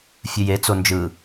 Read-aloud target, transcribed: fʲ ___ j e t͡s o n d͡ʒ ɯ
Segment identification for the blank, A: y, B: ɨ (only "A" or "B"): B